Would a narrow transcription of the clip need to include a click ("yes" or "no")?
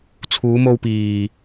no